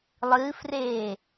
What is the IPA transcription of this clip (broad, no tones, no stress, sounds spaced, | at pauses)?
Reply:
lˠ ɨː f r eː